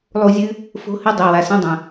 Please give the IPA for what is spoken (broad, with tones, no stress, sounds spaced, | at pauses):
lˠ u˧ zʲ ɨ˦ | f o̤˧ h ɨ˧ dˤ e˨ w a˨ s ẽ˧ dˤ ɐ̃˨